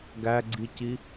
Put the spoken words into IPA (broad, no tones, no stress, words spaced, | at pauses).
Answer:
ɡæɡ͡ǀici